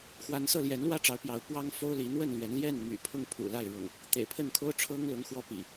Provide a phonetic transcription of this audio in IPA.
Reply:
x w a˨˦ n s ɤ˥˨ l j ɛ˨˦ n l w ä˥˨ ʈ͡ʂ ɑ˨˦ ʊ̯ p j ɑ˨˦ ʊ̯ p w ɑ˦ ŋ f o˦ ʊ̯ l i˨˦ n̪ w ə˥˨ n l ɥ ɛ˨˦ n l j ɛ˥˨ n m y̰˨˩ pʰ ʊ˥˨ ŋ pʰ ṵ˨˩ l a˥˨ ɪ̯ ɻ ʊ̰˨˩ ŋ | t̪ ḛ˨˩ ɪ̯ pʰ ə˥˨ n kʰ o˦ ʊ̯ ʈ͡ʂʰ ɤ˦ ŋ l ʊ˨˦ ŋ x w ɔ˦ p ḭ˨˩

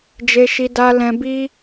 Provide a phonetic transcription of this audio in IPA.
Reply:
d͡ʒ e˦ ʃ i˦ d a˦ l ɛ̃˧ b i˦

